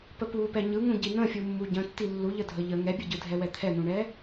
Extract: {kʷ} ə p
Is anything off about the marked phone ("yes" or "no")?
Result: yes